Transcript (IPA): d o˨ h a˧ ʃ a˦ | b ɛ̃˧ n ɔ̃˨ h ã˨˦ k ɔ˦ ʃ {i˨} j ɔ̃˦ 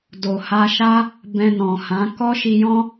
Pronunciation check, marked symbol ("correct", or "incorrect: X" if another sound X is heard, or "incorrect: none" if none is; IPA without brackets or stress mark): incorrect: i˧